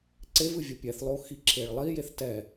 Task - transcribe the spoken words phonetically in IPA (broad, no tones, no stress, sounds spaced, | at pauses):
ǀ e v ɨ vʲ ɐ pʲ ɛ θ lˠ o x i ǁʰ e ɭ lˠ i j e θ t ɛ